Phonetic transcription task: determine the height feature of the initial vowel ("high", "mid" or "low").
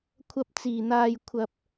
low